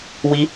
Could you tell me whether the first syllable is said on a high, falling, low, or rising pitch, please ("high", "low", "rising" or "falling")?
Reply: high